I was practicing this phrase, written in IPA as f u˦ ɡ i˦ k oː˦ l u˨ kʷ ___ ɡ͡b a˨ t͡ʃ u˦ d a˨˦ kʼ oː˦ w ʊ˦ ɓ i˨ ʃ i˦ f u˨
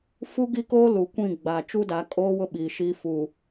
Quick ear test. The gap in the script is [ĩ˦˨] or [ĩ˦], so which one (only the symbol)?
ĩ˦˨